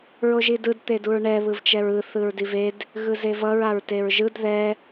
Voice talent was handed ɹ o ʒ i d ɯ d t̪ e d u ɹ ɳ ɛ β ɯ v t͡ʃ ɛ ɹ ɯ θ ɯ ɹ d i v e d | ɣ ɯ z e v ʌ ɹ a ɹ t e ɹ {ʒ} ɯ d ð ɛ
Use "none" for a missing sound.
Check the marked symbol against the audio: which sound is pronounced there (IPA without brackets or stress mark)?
ʒ